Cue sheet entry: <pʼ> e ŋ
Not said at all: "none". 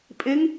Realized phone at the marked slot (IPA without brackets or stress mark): pʼ